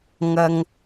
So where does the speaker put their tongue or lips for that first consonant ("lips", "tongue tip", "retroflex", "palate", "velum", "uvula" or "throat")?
velum